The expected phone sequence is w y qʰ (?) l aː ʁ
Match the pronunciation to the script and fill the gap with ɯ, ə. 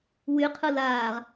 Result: ɯ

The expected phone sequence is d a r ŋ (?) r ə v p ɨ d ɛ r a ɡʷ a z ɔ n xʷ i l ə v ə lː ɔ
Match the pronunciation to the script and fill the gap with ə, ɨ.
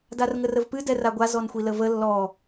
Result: ə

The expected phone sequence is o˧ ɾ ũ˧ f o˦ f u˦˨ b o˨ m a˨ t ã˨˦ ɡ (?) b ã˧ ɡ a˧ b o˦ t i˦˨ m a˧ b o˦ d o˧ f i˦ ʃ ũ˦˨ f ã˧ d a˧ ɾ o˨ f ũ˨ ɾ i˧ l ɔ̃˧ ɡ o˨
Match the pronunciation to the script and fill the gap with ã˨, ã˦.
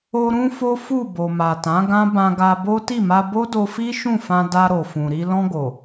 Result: ã˦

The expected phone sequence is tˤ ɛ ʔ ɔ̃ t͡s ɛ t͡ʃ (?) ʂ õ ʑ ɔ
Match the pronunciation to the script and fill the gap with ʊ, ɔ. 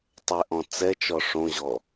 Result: ɔ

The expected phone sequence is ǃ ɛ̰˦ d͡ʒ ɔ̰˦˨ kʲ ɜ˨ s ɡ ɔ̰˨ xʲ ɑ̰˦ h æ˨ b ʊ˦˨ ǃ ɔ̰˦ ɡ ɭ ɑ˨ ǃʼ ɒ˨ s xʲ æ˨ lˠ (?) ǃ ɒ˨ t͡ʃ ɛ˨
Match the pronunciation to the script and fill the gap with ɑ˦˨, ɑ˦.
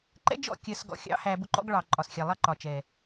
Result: ɑ˦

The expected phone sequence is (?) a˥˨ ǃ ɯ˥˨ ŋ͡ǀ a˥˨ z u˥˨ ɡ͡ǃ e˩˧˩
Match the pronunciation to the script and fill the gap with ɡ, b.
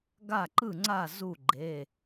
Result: ɡ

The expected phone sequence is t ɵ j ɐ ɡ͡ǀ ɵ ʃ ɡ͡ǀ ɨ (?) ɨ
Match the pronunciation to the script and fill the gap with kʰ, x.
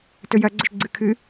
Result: kʰ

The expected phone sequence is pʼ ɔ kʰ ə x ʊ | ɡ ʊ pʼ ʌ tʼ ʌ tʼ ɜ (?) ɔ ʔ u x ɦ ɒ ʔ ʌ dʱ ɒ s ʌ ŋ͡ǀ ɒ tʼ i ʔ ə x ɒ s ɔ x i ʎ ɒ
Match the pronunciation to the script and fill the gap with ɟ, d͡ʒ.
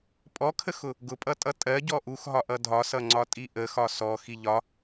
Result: ɟ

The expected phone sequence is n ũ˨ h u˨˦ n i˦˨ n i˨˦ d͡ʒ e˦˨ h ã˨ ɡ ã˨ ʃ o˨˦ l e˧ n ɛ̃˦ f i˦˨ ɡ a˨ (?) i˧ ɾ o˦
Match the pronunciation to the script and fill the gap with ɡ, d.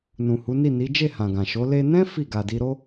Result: d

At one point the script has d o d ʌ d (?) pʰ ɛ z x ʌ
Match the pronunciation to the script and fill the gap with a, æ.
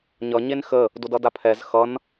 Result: a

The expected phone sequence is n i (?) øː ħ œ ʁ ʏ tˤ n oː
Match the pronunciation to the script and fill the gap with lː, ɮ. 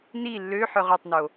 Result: lː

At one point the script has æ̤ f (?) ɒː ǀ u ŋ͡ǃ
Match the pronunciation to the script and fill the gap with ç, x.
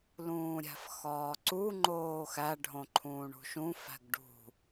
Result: x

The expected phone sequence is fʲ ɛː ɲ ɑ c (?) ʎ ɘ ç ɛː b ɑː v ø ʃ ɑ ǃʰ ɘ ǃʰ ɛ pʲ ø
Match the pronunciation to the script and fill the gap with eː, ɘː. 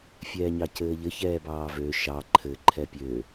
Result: ɘː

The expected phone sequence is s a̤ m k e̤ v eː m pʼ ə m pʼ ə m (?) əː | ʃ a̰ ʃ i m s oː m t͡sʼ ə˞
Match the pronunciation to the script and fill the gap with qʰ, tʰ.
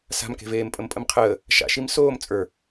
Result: qʰ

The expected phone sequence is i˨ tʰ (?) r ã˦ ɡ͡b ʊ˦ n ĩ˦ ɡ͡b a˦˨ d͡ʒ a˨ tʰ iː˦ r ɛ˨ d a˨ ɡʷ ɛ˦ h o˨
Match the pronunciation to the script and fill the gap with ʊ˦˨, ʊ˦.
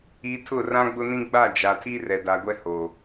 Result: ʊ˦˨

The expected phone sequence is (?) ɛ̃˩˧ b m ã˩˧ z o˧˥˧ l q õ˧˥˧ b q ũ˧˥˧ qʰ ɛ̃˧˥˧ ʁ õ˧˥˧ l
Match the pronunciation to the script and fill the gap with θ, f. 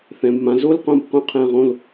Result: θ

